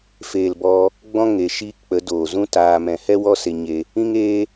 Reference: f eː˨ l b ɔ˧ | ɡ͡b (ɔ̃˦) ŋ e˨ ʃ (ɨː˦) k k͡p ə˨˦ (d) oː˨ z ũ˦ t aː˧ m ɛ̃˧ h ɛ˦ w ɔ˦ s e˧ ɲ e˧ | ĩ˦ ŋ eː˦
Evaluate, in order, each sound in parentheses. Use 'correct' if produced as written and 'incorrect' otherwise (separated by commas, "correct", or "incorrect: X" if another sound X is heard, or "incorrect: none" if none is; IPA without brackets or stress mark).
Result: correct, incorrect: iː˦, correct